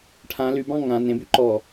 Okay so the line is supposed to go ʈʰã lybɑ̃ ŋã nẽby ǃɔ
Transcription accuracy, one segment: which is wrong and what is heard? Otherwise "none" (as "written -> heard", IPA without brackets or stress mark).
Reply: none